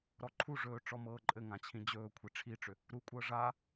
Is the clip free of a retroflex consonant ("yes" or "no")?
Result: no